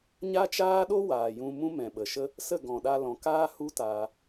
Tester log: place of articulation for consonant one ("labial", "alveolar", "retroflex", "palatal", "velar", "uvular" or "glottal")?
palatal